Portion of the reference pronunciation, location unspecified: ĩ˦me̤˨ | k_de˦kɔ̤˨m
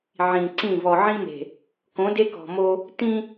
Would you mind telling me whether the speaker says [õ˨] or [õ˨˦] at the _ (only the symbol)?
õ˨˦